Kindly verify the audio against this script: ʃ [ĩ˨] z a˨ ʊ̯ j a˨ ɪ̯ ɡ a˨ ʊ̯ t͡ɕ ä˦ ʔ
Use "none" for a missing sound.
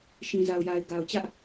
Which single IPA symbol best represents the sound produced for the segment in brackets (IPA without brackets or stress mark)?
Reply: ĩ˨